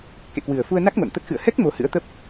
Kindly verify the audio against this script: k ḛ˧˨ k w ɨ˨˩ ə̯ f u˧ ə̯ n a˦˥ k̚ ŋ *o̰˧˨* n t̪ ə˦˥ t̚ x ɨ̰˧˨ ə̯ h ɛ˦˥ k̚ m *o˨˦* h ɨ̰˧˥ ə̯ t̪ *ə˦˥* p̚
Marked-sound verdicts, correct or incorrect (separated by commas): correct, correct, correct